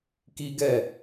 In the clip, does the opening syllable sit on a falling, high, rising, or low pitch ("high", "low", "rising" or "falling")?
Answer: high